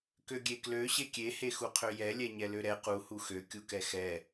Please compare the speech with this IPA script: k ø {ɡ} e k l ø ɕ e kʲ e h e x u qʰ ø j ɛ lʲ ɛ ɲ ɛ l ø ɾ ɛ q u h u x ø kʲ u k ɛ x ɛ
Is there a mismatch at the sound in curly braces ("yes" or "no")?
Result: yes